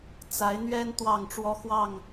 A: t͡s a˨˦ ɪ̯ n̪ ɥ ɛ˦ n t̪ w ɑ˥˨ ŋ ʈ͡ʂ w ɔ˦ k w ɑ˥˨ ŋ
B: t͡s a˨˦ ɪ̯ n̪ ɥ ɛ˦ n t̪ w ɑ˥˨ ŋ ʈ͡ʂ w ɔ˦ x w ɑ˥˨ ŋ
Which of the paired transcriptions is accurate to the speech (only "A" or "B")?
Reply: B